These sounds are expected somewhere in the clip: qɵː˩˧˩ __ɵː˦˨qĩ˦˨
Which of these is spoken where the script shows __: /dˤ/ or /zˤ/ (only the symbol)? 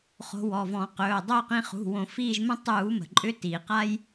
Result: dˤ